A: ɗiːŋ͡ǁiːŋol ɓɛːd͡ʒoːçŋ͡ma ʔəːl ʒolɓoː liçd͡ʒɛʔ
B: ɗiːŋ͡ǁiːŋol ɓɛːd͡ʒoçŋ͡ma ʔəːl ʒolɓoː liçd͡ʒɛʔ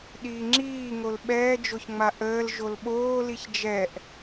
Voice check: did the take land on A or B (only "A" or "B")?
B